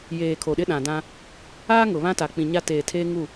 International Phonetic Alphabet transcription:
jeː˨ kʰo˨ɗɪ˦ɗã˨dã˦ | aː˦ ŋʊ˨ βã˦ta˨ k͡pĩ˨ɲa˦ teː˨tʰeː˦ ŋu˦˨

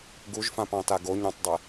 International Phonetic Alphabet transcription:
ɡuʒfãpɑ̃ta ɡoɲɑ̃tˤdˤe

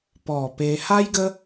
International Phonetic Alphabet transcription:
pɔ˨˩ pe˧ ha˦jɡə˦

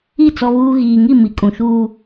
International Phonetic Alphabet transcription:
i˦˨ t͡sɔ˦βuː˦ ɣiː˨ŋi˦˨ mi˨kʼũ˨ʃuː˦

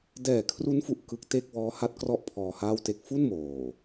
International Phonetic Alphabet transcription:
dɛː˨˩ kʰru˦˥nfu˨˩ʔ kɯ˦˥k̚te˥˩k̚ wɔː˦˥ha˦˥t̚ krɔ˥˩ʔpʰɔː˧ haː˥˩wte˥˩k̚ fu˥˩n moː˨˩

